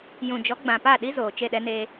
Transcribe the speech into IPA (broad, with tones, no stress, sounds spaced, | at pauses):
j ũ˨ d͡ʒ ɔ˨˦ ɡ͡b ã˨ p a˦˨ ɗ i˦ z oː˨ t͡ʃ e˦˨ ɗ ɛ˦ n eː˦